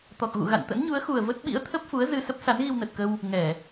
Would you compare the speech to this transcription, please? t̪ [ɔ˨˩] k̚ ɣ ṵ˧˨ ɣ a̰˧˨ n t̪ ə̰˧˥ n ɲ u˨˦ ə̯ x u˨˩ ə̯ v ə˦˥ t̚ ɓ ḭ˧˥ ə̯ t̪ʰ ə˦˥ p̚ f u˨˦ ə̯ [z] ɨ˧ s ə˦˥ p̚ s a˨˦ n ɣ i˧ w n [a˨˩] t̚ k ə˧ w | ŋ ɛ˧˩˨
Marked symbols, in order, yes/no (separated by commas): yes, yes, no